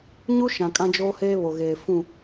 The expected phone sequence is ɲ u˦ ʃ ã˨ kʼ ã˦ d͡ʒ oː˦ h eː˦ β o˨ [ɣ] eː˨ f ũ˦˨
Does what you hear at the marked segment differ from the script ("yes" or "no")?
no